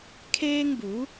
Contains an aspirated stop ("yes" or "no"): yes